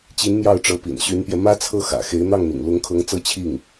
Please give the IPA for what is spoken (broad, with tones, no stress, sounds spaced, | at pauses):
t͡ɕ i˧˥ n m j ɑ˥˩ ʊ̯ ʈ͡ʂ ɤ˧˥ p ḭ˨˩ n ɕ y˧˥ n p j ɛ˧ m ä˥ t͡sʰ ɤ˥˩ x ä̰˨˩ x e˧˥ ɪ̯ n̪ ɑ˥˩ ŋ n̪ ḭ˨˩ ŋ l ʊ˧˥ ŋ kʰ ɤ˧˥ ŋ t͡s ɤ˥˧ t͡ɕʰ i˥˩ ŋ